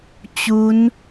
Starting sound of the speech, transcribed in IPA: t͡ɕ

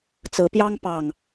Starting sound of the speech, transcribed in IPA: t͡s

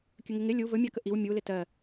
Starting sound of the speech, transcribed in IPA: kʲ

